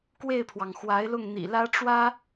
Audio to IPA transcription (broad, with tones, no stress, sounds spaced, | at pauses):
k w e˥˩ ɪ̯ pʰ w ɑ˩ ŋ x w a˧˥ ɪ̯ l ʊ˥˩ ŋ n̪ ḭ˨˩ l ä˥ ʈ͡ʂ w ä˥